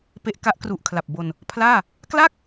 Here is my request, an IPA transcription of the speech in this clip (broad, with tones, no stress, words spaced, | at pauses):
pe˦˥ʔ ka˦˥ʔkru˨˩ʔ kʰla˨˩p̚ bo˧n | pʰlaː˥˩ | kla˥˩k̚